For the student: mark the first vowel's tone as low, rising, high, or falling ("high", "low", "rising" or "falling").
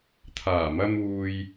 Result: low